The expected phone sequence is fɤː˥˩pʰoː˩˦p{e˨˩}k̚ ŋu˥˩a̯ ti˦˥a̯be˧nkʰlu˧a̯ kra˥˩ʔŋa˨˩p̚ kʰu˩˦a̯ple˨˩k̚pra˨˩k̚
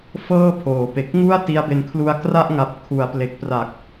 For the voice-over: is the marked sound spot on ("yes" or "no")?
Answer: yes